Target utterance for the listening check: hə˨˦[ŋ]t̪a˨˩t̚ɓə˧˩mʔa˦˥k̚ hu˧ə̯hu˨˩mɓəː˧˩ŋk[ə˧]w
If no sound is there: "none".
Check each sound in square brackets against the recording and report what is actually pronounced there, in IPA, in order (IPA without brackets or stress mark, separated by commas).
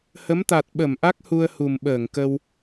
m, ə˧